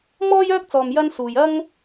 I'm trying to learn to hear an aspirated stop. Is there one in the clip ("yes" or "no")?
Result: no